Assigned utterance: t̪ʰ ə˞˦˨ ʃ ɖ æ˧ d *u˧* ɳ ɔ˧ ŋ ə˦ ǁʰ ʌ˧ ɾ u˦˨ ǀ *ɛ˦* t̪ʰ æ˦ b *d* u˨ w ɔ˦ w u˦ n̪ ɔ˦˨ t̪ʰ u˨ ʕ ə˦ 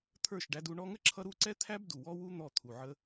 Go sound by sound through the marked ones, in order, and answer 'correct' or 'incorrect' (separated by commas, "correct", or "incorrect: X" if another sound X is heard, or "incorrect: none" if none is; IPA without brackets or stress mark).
correct, correct, correct